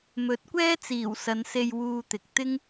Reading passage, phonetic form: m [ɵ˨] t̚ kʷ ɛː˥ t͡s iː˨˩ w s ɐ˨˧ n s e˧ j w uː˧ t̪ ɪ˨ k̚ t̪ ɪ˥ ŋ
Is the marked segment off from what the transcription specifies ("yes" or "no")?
yes